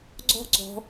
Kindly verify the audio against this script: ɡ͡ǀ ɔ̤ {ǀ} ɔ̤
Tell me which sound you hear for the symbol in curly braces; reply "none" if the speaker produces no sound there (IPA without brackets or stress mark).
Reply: ǀ